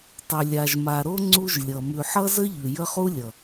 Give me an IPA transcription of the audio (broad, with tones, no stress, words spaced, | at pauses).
tˤʉ˨lʲa˨ʒma˨ɾo˦ ŋ͡ǀu˦ʒlʲʌ˨ mʉ˨ħʌ˦zə˦ ʎʉ˨jə˦χu˦lʲʌ˨